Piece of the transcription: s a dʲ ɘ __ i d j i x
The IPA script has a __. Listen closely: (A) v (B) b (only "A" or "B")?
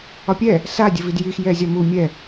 A